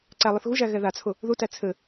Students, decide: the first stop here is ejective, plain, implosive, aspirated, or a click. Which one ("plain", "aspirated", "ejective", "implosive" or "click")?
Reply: click